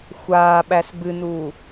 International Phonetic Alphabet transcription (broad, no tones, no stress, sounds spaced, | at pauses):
xʷ aː ɓ æ s b ɨ n uː